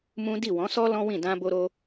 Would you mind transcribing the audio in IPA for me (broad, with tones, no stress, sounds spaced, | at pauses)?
m ũ˦ d i˦˨ w ɔ̃˨˦ s ɔ˦ l ɔ̃˦ w ĩ˦˨ d ã˧ b o˧ ɾ o˧